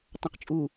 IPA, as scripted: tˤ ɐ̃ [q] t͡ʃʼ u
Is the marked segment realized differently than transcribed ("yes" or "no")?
no